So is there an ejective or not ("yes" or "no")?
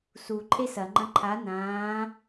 yes